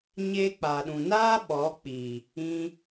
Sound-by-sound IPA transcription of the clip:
ɲ eː˧ k͡p a˨ ɗ ũ˨ n aː˦ ɓ ɔ˨˦ k͡p i˨ | ĩ˧

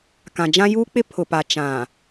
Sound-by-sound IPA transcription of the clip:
k ã˨ d͡ʒ ã˦ j uː˦ k͡p ɪ˦ pʰ ʊ˨ p a˨ t͡ʃ ã˨

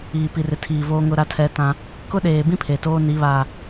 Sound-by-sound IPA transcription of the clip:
iː˨ p i˨ r ɪ˨ tʰ iː˨ v oː˦ ŋ ʊ˦ ɾ a˦ tʰ ɛ˦ t ã˦ | k ʊ˦ ɗ eː˨ b ĩ˦ pʰ e˨ t oː˦ n i˨˦ β aː˨

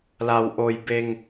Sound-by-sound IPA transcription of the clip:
l a˩ w ʔ o˩ j b e˩ ŋ

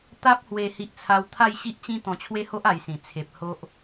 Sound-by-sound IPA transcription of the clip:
t̪ a˦ p̚ h w e˧ h i˦ ʔ t͡sʰ a˦ w t̪ʰ a˥˧ j ɕ i˦ ʔ t͡ɕ ĩ˦ t̪ ɔ̃˧ t͡ɕʰ w e˦ h o˦ ʔ a˧ j s ĩ˨˩ t͡sʰ e˨ p̚ h o˦ ʔ

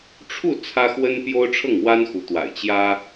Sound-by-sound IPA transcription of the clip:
ʈ͡ʂʰ u˥˩ t͡sʰ ä˥ x w ə˥ n p j o˥ ʊ̯ ʈ͡ʂʰ ɤ˥˩ ŋ w a˥ n x u˧˥ t̪ w a̰˨˩ ɪ̯ t͡ɕ j ä˥

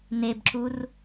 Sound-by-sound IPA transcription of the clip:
n e b ǁ u r

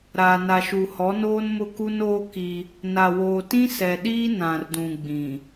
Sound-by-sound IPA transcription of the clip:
ɾ aː˨ n a˨ ʃ u˨ h ɔ˨˦ n oː˦ n m ʊ˦ k u˦ n oː˦ k i˦ | n a˨ w oː˨ t ĩ˦ s ɛ˨ ɗ iː˦ n ã˨ r d ũ˨ ɡ͡b ĩ˨

